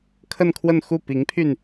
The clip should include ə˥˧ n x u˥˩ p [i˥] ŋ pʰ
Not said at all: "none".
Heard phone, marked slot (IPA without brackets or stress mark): i˧˥